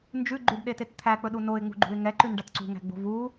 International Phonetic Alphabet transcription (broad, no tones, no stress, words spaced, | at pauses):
nd͡ʒʉɡ͡ǃʉɖɗetet t̪ʰæk͡pɵɗu noɪ̯ŋ͡mṳɡ͡ǃṳɪ̯ ŋɛǃʉnɖat ǀṳŋæ̤ɡ͡bo̤ vu